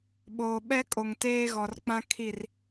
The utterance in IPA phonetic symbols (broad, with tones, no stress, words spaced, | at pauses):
ɓoː˨ɓɛ˦ kʼo˨ŋteː˦ɣɔ˨r k͡pã˦ kʰi˦˨r